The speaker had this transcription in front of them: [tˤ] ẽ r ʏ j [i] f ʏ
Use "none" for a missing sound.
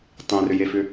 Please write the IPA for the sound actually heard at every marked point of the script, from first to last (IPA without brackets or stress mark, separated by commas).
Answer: tˤ, e